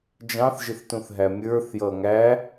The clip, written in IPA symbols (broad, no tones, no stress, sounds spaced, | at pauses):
d͡ʒ ɑ̃ θ ʒ ɪ θ t ũ θ ɦ æ mʲ ə˞ θ j ʌ ŋ æ